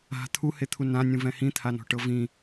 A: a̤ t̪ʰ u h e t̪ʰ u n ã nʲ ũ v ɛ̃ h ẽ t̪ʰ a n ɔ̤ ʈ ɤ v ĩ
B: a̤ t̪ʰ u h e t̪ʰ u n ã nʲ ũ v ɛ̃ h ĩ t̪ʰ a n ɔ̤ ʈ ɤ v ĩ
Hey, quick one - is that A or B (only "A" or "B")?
B